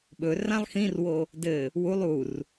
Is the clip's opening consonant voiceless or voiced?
voiced